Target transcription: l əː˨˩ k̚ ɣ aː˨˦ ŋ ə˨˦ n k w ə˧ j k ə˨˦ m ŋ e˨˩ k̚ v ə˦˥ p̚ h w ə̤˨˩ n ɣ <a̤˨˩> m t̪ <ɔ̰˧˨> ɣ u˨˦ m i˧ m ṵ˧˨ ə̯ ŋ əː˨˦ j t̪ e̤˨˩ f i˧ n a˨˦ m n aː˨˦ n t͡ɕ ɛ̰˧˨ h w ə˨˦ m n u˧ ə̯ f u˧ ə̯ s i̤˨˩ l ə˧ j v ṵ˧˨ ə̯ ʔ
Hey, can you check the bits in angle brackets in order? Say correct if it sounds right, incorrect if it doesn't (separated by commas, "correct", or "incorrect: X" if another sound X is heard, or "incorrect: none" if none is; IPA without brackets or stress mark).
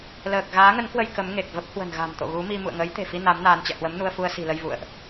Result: correct, incorrect: o̰˧˨